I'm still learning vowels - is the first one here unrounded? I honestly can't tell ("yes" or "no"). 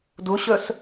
no